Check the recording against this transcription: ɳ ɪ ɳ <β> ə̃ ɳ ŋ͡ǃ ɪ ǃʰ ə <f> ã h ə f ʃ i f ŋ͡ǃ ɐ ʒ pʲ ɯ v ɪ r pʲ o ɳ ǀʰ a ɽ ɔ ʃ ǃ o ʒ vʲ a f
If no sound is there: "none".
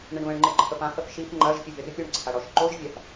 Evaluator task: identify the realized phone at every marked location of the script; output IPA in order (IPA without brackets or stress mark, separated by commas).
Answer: β, f